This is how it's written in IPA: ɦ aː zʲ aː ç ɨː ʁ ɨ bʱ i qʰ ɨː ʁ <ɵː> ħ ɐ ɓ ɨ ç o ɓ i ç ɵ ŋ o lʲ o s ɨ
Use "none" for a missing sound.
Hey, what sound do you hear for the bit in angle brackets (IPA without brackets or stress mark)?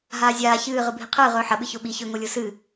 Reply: ɵː